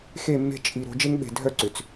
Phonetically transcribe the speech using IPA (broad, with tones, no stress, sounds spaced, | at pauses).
x e˦˨ mː e̤˦ t͡ʃʼ i˨ ɾ o̤˦ d͡ʒ e˦ ŋ ɓ e̤˨ dʱ œ˦˨ ǀ ʏ˨ t͡s